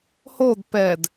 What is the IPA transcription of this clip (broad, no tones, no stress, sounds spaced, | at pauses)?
h o d p ɛ d